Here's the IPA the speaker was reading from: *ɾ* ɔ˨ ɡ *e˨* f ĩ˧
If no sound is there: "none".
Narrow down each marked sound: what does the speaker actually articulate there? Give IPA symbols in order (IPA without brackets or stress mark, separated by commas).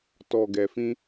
t, ɛ˨